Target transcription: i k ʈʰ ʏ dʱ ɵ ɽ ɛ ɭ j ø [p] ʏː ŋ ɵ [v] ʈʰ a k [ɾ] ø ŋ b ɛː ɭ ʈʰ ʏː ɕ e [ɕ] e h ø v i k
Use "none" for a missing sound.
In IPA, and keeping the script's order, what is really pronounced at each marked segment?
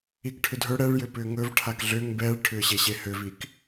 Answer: p, v, ɮ, ɕ

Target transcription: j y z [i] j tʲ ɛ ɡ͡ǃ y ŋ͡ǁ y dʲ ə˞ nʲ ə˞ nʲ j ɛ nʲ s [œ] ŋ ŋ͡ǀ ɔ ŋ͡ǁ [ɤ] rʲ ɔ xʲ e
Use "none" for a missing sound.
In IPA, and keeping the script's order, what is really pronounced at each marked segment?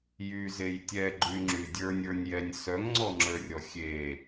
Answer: e, œ, ə˞

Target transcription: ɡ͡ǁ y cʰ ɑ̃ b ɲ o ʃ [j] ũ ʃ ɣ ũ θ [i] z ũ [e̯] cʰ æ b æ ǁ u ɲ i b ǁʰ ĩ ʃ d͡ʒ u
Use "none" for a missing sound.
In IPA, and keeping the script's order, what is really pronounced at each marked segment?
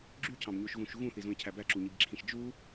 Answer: ɣ, i, e̯

